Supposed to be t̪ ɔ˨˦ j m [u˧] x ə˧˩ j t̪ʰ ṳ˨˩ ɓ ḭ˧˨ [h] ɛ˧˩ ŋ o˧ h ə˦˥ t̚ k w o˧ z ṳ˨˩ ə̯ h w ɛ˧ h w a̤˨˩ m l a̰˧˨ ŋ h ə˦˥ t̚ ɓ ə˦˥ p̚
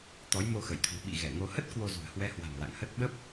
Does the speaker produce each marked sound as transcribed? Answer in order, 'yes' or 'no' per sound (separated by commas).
no, no